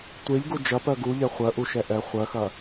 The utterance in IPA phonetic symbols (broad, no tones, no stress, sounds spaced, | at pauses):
tʷ e ʎ ɡ u d͡ʒ ɐ p ɜ ɡ u ʎ ɛ χʷ ɜ ʔ u ʃ ɛ ʔ ɛ χʷ ɜ x ɐ